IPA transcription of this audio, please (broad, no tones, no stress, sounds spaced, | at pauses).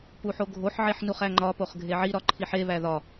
p u ħ o ɡʱ o ħ ʕ e ħ n u χ æ ŋ͡ǃ ɒ p o χ ɡʱ e ʕ i ɾ ɒ ǃʰ i ħ e β æ ð ɒ